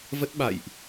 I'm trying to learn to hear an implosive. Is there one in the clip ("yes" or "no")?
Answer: yes